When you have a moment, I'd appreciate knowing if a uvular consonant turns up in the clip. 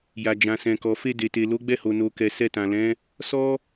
no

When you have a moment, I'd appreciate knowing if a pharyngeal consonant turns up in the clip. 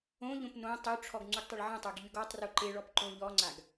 yes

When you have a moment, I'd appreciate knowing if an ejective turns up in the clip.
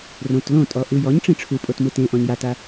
yes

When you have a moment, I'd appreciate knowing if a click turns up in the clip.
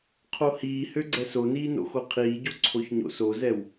yes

